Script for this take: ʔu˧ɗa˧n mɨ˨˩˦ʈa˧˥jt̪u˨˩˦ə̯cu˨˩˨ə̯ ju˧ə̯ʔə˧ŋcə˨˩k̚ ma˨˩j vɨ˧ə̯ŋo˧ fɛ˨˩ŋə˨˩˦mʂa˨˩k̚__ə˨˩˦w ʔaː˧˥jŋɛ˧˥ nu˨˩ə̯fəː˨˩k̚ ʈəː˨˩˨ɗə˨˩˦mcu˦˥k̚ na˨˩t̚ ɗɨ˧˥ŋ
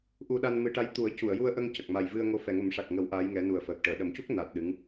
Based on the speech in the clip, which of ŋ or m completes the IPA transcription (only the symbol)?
ŋ